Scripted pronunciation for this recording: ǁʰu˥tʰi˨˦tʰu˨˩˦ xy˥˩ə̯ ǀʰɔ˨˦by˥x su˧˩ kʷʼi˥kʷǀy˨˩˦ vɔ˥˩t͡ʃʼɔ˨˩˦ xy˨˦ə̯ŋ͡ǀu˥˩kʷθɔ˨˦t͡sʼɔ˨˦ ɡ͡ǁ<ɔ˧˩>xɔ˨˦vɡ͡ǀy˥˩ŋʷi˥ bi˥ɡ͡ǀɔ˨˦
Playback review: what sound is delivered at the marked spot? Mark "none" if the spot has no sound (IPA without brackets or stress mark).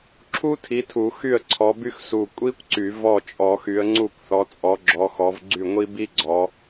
ɔ˨˦